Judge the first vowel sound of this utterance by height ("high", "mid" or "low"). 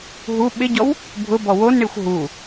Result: high